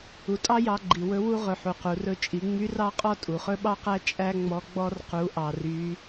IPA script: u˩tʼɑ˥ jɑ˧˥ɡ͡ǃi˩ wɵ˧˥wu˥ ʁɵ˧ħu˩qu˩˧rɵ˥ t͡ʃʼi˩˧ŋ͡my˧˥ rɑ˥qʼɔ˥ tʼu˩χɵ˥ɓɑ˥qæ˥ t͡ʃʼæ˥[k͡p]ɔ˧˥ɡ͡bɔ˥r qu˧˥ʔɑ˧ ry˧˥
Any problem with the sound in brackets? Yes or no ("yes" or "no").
yes